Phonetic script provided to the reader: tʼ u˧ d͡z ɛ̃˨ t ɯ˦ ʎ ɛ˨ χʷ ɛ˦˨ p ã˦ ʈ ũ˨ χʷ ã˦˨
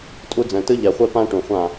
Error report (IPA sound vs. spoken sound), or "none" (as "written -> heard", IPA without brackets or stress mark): none